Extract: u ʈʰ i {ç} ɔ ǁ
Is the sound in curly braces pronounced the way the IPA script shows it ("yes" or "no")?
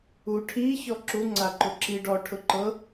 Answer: yes